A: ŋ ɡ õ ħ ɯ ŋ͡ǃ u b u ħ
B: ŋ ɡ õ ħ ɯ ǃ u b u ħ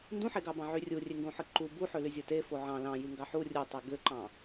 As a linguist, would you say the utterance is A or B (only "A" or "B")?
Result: B